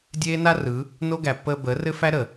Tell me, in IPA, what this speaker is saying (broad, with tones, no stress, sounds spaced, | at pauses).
dʲ eː˦ n a˦ r ɯ˨˦ | n o˦ ɡ æ˨ pː əː˧ b əː˨˦ r ɘ˦ f æ˦ ɾ əː˨